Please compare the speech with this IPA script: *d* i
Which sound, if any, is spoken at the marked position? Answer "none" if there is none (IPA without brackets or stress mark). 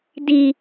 d